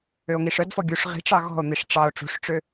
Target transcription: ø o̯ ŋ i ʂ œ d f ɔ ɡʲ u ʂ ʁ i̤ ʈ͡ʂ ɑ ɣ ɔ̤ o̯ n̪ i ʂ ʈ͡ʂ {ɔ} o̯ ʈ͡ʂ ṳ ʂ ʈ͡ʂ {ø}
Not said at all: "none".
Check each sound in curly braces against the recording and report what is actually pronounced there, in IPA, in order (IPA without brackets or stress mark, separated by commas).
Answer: ɑ, ø